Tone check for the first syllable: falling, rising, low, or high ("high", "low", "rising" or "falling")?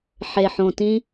low